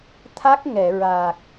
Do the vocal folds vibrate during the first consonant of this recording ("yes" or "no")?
no